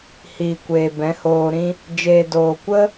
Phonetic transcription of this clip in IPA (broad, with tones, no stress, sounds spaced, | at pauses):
h iː˨ kʷ eː˨ b ɛ̃˨˦ h oː˧ ɾ ĩ˦ | d͡ʒ eː˨ d oː˨ kʷ ə˦